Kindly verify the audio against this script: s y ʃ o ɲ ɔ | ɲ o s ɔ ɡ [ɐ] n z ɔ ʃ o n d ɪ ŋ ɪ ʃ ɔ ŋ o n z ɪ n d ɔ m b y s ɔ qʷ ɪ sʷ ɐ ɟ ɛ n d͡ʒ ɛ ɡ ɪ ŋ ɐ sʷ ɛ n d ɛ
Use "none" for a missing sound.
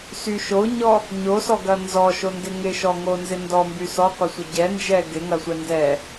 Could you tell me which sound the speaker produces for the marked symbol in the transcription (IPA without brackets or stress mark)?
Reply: ɐ